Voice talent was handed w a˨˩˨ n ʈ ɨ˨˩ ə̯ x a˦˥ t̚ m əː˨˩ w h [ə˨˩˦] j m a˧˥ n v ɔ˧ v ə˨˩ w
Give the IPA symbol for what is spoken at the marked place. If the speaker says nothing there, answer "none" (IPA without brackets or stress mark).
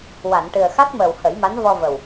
ə˨˩˦